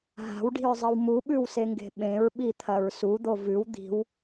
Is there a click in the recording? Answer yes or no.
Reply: no